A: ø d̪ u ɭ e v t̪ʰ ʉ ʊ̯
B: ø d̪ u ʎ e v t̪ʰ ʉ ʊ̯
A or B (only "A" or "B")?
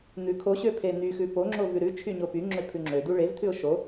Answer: A